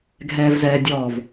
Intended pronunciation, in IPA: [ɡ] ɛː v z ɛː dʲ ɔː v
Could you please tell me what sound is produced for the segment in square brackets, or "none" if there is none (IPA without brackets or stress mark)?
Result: ɡʱ